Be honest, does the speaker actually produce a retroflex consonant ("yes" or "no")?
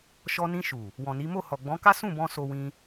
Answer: no